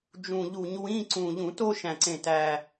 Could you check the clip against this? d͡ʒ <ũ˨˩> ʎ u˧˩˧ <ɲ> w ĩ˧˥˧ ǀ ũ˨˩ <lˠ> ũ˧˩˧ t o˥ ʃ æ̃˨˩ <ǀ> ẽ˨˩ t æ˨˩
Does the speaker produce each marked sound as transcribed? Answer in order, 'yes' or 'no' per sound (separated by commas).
yes, yes, no, yes